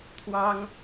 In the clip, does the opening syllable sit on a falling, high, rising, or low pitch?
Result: high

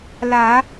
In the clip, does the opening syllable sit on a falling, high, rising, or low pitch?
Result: low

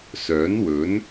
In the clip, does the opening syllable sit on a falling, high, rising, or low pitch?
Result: rising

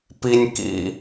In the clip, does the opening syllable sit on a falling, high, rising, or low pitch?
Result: high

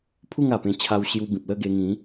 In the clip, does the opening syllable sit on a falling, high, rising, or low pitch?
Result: falling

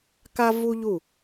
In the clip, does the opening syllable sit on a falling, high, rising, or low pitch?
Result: high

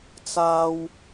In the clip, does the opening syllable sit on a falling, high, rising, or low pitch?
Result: high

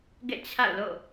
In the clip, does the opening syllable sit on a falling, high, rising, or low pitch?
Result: falling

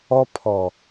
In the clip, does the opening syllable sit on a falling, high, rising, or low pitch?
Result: high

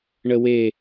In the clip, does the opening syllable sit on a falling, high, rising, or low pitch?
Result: high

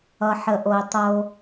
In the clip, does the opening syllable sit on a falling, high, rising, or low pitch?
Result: low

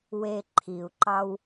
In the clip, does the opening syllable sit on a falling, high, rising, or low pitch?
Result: high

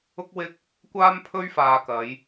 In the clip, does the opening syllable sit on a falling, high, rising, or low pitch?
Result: high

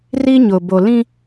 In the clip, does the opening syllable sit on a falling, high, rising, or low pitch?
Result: high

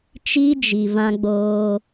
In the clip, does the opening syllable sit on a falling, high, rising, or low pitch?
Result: high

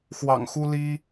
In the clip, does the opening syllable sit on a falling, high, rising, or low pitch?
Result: low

